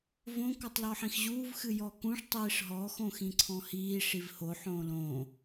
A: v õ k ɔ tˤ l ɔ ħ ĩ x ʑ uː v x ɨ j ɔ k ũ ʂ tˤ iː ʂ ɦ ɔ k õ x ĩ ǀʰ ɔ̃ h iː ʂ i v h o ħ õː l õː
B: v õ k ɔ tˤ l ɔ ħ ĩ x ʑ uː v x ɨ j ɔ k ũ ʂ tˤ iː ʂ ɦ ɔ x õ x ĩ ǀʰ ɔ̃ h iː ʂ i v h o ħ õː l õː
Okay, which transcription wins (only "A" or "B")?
B